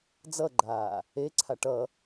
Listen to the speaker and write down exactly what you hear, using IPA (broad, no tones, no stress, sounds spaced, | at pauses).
d͡z ʌ ɡ͡ǃ aː | e ǀʰ a ʈ ʌ